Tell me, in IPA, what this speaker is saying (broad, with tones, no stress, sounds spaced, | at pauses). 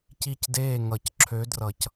c i˧˩ c d eː˧˩ ŋ ʌ˨˩˦ c ǁʰ ø˨˦ d r ʌ˨˩˦ c